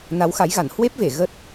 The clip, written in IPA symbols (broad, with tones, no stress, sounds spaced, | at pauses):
n a˨˦ w x a˨˦ j ɣ a˧˩ n h w e˦˥ p̚ v e˧˩ ɣ ə˦˥ t̚